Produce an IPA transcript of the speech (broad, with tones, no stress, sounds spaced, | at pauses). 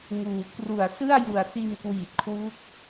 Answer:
ŋ uː˩˦ k r u˨˩ a̯ s ɯ˥˩ a̯ j u˨˩ a̯ s i˧ n k w iː˨˩ t̚ kʰ w u˦˥ k̚